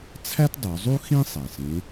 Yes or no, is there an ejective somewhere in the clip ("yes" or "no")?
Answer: no